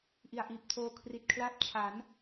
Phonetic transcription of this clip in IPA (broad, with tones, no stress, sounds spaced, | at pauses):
ʔ i˨˩ a̯ ʔ iː˨˩ p̚ tʰ oː˧ kʰ r i˨˩ t̚ kʰ l a˦˥ p̚ t͡ɕʰ a˩˦ n